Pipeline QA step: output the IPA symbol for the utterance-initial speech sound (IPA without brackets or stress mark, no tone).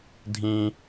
dʱ